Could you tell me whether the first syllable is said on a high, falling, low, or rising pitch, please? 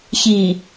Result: low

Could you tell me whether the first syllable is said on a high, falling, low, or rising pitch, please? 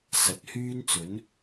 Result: rising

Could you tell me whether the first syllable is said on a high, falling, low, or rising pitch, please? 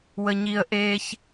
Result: high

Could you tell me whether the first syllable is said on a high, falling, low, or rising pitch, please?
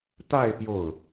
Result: falling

